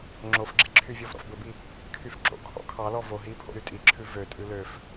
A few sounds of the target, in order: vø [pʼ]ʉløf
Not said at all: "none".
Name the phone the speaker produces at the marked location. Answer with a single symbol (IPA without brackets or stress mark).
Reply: tʼ